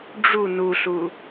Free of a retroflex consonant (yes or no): no